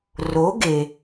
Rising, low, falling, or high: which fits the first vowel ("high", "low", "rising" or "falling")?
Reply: rising